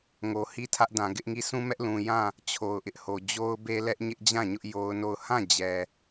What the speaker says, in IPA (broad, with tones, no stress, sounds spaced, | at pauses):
ŋ o˨ h i˦ tʰ ä˦ ʔ d ã˨ ɡ ɪ˦ ʔ ŋ i˦˨ sʰ ũ˦ m ɛ˦ ʔ l ũ˨ j ã˦˨ | t͡ɕʰ o˨ ʊ̯ ʔ ɪ˦ ʔ h o˨ d͡ʑ o˦ ʊ̯ b e˦ l ɛ˦ ʔ ɲ ɪ˦ ʔ d͡ʑ ã˦˨ ɲ ʊ˦ ʔ j o˦ ʊ̯ n o˦˨ ʊ̯ h ã˦˨ d͡ʑ ɛ˦